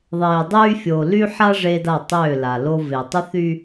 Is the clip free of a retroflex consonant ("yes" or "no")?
no